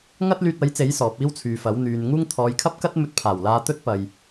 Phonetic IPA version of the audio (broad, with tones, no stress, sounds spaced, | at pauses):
ŋ ɐ˥ t̚ l yː˧ t̚ ɐ˨˥ j t͡s e˨˥ j s ɔː˨˥ p̚ iː˥ w t͡sʰ yː˨ f ɐ˨˥ w n̪ yː˨ n ŋ uː˥ ŋ t̪ʰ ɔː˨˧ j kʰ ɐ˥ p̚ k ɐ˥ t̚ m ɵ˧ t̚ pʰ aː˨˩ w l aː˧ t̪ ɵ˥ t̚ p ɐ˨ j